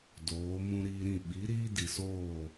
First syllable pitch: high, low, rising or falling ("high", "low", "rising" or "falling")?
rising